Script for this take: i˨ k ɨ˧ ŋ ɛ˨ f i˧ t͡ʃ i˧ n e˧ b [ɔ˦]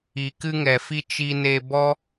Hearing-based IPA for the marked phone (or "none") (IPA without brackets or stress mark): ɔ˦